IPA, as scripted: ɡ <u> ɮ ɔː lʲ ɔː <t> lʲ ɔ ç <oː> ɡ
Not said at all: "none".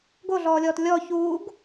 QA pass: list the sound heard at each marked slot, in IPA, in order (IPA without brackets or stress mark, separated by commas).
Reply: o, t, uː